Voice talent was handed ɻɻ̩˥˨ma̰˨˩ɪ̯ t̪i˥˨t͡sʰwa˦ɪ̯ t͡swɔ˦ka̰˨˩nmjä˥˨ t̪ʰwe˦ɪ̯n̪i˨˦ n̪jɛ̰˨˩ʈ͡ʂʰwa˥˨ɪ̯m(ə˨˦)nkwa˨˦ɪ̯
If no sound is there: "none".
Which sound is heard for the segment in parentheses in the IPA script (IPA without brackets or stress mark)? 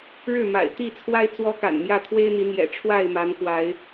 a˨˦